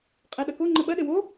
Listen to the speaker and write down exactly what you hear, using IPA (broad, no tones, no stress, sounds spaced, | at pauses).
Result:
qʼ e ɗ ɐ k o ŋ͡ǃ ɘ ɓ ɐ ɗ ɘ w o